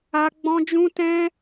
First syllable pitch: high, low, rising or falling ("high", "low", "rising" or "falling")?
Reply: high